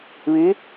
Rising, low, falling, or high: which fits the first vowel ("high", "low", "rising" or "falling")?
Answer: rising